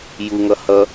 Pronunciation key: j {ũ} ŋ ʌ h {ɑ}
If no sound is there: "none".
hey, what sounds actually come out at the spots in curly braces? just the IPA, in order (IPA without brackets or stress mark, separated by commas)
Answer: u, ʌ